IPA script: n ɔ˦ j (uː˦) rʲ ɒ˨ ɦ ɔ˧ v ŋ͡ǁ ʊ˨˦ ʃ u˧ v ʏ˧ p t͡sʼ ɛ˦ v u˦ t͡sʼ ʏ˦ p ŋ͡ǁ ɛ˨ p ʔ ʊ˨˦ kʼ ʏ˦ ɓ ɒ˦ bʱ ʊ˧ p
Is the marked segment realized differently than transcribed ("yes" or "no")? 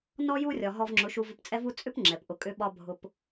yes